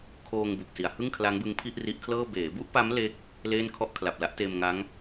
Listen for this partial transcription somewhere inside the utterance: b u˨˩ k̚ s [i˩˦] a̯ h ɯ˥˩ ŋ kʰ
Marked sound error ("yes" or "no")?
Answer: no